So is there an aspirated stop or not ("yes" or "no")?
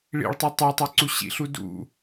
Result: no